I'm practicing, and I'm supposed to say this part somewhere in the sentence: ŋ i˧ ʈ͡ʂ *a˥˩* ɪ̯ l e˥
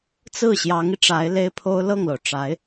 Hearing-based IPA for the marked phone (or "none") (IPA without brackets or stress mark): a˧˥